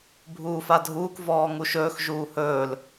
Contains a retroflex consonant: no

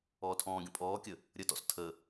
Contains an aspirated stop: yes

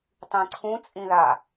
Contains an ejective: yes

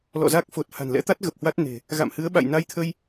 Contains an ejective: no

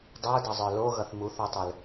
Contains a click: no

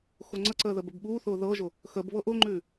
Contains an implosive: yes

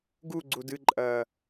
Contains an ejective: yes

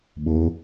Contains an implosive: yes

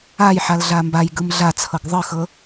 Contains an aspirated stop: yes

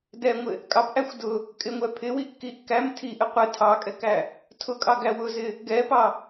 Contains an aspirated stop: yes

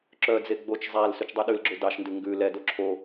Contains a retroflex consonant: no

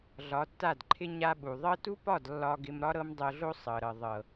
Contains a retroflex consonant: no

